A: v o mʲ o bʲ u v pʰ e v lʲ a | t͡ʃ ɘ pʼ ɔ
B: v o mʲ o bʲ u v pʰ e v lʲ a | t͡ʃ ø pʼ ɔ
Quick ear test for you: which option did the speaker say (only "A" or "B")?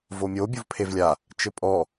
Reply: A